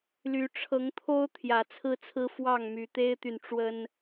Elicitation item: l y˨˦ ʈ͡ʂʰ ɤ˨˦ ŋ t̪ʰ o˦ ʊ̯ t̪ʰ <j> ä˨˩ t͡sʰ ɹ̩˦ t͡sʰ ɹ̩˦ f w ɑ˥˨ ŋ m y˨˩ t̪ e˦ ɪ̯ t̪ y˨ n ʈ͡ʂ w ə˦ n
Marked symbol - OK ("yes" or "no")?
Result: yes